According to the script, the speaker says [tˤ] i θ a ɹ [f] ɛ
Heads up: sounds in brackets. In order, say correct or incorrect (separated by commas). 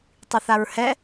correct, incorrect